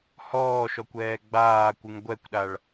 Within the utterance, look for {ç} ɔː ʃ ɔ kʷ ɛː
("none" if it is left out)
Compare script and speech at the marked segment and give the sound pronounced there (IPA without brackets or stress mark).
h